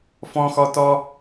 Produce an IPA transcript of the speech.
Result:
fɔ̃xɔtɔ

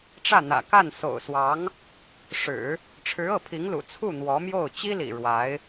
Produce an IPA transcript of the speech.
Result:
ʈ͡ʂä˥˩n̪ä̰˨˩ ka˥˩n so̰˨˩ʊ̯swɑ˧˥ŋ | ʂɻ̩˨˩˦ | ʈ͡ʂʰɻ̩˧˥ɤ˥˩pʰi˧˥ŋlṵ˨˩ t͡sʰu˥˩n̪wɔ˧˥mjo˥˩ʊ̯ t͡ɕi˥lḭ˨˩ ɻwa˧˥ɪ̯

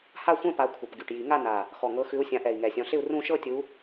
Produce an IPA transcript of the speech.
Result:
ha˥˧xʷɛ̃˥˧pa˨˦ kʷʰɤ˨˩pɡy˨˩ʈ ji˨˩˦ŋa˥˧ na˨˩ | xɔ˨˩ŋɤ˨˦xʉ˨˦u̯ sʲã˨˦ʔɛ˨˩i̯ ŋɛ˨˩sʲɔ̃˨˦ɬɪ˥˧u̯ rũ˥˧ ʃɤ˥˧tʲu˨˦

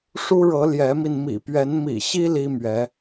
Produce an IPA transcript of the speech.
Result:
ʂu˥ɻɤ˧˥ ljɛ˧˥mi˧n mḭ˨˩pɥɛ˧˥n mḭ˨˩ɕi˥ li˥mɥɛ˧˥

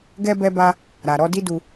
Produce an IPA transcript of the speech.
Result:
ɡɛ˦bɛ˦ba˦ | ɾa˨ɾɔ˨˦di˦du˧

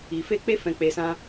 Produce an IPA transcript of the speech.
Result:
i˨ fe˧k͡pe˧ fɛ̃˨ k͡pe˨sã˧

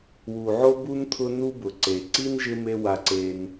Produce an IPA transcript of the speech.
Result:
wu˩ʕo˦bu˦n t̪ʰʊ˦ nu˦bʊ˩ ǀe˩ǀi˥nʒɪ˦ me˦ wa˨ǀe˨n

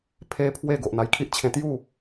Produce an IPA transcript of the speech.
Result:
pʰe˦pʰwe˥˧ ɡo˨ʔn̪a˧jkʰi˦ʔ t͡ɕʰẽ˧t̪ju˥˧

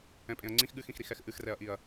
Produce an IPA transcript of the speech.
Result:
ɛ̃pʼẽɐ̯ŋ͡ǀĩx ɠɨxĩxɾix ɛxʔɨxrɛɐ̯ʔiɐ̯

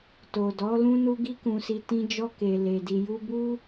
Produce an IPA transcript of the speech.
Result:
to˨dɔ˨˦ lũ˧nu˧ɡi˧ kũ˧si˧ tĩ˧d͡ʒɔ˧ ke˨le˨di˨ ju˧bu˦

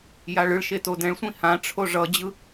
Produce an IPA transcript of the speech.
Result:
jaɭɯɭʃe todɛ̃ɭsʷĩ hãʈ͡ʂʰo ʐʌd͡ʑɯ

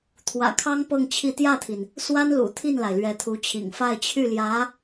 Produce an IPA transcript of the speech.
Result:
t̪ʰwä̰˨˩kʰɑ˥ŋ pɤ˥˧ŋt͡ɕʰi˥˧ t̪jä˥˩t̪ʰi˩n | swa˥n lṵ˨˩t̪ʰi˥˩nla˩ɪ̯ lɥɛ˧˥t̪ʰu˧˥t͡ɕʰḭ˨˩ŋ fa˥˧ɪ̯t͡ɕʰy˥˩ljä˧˥

